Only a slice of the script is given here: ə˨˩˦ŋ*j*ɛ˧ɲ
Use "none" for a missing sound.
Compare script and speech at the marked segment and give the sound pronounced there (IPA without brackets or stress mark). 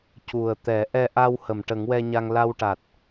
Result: w